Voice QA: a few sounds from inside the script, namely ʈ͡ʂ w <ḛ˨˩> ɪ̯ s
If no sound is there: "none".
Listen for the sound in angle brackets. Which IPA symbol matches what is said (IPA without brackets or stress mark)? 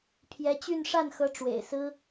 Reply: ḛ˨˩